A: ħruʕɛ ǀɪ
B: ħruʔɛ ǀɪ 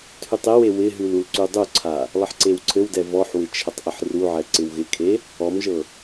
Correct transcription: A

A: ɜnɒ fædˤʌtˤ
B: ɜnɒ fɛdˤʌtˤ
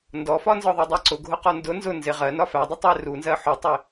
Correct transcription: A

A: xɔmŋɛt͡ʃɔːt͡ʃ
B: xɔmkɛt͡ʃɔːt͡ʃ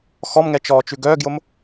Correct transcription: A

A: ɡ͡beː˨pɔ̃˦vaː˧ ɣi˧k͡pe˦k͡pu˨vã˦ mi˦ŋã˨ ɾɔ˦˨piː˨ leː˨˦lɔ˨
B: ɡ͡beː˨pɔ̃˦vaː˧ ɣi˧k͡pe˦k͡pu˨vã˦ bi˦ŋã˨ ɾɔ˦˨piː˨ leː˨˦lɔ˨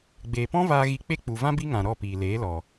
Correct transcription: B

